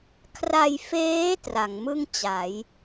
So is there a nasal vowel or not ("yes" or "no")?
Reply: no